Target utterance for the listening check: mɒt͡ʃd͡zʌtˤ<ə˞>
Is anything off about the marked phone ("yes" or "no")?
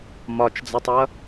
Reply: yes